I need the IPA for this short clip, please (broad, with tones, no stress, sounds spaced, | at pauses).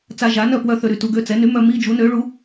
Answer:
t͡s a˧ ʒ a˩˥ n œ˥˩ p w œ˥˧ θ ø˧ ɾ y˥˩ t u˧ ɡ ø˥˧ t͡s ɛ˩˥ n y˩˥ m œ˧ m i˥˧ d͡ʒ u˩˥ n ø˩˥ ɭ u˩˥